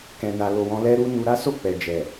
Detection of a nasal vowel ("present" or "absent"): present